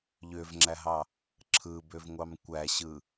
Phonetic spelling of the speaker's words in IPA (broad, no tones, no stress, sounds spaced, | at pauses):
ʎ ø v ŋ͡ǁ æ ɦ ɑ | ǁʰ ɯ b ø v ŋʷ ɑ m kʷ æ ɕ ɯ